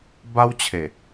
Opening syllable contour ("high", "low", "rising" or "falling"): high